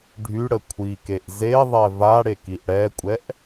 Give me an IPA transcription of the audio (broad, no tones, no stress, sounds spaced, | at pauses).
ɖʱ y ɽ ə kʷʰ i k e ʔ z e ðˤ ɛ v a ɽ e k i ʔ ɽ ɛ kʷʼ ɛ ʔ